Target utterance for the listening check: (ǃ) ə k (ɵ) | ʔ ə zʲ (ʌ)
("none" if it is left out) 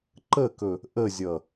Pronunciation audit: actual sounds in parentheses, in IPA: ǃ, ɵ, ʌ

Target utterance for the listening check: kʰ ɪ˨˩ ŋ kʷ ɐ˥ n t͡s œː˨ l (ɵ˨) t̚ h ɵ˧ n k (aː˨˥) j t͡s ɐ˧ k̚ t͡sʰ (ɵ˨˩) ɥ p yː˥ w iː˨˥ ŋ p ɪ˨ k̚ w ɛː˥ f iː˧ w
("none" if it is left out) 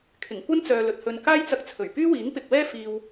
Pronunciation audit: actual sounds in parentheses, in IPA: ɵ˨, aː˥, ɵ˨˩

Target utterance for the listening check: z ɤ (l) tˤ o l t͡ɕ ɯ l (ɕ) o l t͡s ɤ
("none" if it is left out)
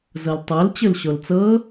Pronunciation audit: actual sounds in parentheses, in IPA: l, ɕ

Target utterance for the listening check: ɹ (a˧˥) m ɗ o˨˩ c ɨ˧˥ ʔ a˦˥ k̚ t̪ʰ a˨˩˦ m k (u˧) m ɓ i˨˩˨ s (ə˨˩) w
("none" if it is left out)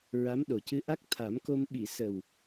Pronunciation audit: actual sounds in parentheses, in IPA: a˧˥, o˧, ə˨˩

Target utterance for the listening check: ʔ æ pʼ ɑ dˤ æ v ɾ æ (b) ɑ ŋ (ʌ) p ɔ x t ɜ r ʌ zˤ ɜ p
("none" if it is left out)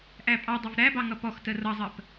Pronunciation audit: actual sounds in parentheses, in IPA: b, ʌ

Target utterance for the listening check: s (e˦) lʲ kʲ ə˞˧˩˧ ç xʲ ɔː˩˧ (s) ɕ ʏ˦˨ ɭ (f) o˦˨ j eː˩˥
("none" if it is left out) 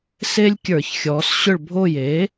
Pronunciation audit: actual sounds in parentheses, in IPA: e˦, s, bʱ

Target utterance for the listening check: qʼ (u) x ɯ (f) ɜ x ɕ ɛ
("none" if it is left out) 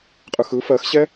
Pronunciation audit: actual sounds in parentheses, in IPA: ɯ, f

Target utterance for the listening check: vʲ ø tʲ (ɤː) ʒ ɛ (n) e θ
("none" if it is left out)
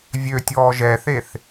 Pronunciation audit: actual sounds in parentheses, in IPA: ɔː, θ

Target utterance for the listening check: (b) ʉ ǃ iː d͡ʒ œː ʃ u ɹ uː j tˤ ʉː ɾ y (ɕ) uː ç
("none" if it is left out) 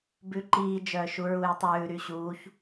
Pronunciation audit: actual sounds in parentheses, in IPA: b, ɕ

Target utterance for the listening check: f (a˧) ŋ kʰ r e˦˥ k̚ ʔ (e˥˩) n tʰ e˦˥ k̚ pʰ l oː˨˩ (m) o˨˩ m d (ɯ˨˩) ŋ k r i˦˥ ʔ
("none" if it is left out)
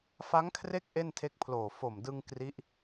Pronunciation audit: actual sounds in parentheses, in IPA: a˦˥, e˥˩, f, ɯ˧

